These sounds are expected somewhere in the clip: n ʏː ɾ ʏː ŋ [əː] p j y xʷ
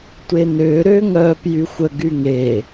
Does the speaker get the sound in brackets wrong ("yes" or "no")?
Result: yes